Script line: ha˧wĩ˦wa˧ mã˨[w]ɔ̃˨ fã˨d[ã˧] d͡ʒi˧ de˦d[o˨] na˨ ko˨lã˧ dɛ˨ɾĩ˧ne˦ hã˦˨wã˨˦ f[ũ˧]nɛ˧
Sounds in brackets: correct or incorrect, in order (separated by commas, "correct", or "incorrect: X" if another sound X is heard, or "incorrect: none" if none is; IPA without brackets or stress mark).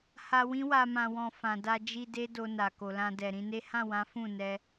correct, incorrect: a˧, incorrect: o˧, incorrect: ũ˦˨